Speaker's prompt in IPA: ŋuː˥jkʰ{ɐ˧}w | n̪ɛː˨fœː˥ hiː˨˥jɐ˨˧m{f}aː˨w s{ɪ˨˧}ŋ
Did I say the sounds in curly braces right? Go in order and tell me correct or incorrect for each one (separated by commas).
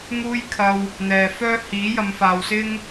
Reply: correct, correct, incorrect